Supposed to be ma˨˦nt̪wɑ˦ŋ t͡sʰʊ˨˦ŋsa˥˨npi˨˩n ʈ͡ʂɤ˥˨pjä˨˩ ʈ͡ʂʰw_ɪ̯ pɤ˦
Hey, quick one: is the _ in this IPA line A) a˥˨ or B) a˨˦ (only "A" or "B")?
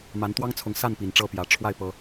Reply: A